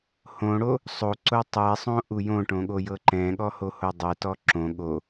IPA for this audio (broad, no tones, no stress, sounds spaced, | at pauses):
h õ ɽ o | sˤ o ǀ o tˤ ɛ sˤ õ ʔ u j õ ʈ õ ɠ o j ɤ ǃ ɛ̃ ɠ ɔ h o h o dˤ ɛ t ɔ ǁ õ ɠ o